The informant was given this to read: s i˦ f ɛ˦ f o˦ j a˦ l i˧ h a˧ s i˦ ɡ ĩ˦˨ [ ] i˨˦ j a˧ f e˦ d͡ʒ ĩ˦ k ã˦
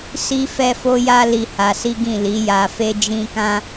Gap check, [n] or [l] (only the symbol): l